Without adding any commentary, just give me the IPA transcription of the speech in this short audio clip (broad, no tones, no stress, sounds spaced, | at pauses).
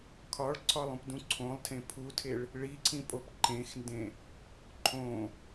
kʰ ɒ ɭ ǀʰ ɒ lˠ ũ p d ũ ǀʰ õ lˠ tʰ ẽ pʰ u tʰ e ɭ | ɭ i ǀʰ ĩ pʼ o p ǃ ẽ x n d ẽ | ǃʰ õ